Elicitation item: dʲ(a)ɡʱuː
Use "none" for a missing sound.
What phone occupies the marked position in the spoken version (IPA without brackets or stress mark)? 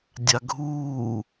a